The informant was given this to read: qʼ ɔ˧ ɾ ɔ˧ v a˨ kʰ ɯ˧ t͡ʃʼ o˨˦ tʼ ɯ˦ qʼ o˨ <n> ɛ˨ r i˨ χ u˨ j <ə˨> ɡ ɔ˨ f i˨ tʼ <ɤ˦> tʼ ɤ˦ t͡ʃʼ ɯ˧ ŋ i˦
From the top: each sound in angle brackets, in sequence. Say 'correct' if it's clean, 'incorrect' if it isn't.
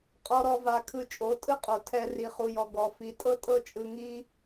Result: incorrect: tʰ, incorrect: ɔ˨, correct

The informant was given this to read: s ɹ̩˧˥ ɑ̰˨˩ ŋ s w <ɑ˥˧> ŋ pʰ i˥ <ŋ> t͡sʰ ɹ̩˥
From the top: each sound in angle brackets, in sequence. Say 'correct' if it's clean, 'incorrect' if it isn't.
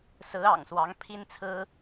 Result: incorrect: ɑ˧˥, incorrect: n

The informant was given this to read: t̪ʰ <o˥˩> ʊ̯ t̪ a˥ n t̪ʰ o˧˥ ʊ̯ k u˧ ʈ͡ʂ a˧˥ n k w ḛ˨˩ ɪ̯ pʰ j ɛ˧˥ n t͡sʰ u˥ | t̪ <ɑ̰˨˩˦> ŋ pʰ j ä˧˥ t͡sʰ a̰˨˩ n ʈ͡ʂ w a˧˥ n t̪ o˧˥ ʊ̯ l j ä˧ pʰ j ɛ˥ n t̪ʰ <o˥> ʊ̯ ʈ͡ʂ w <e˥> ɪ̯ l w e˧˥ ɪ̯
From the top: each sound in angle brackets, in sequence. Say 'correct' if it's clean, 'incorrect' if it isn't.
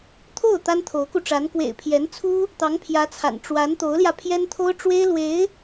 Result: correct, incorrect: ɑ˧˥, correct, correct

